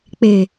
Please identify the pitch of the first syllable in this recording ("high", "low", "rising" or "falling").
low